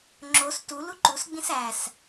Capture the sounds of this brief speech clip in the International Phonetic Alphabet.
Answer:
ŋ͡ǁos tu luǃusɡ͡bĩs æs

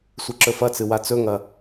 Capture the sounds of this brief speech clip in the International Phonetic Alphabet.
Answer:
sʷiǁɵfɐt͡sɨ wat͡sɵŋɐ

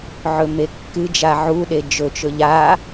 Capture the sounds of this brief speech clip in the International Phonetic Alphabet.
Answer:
ʕɵmekːɨd͡ʒa ʕuɗe d͡ʒɵt͡ʃɵ ʎa

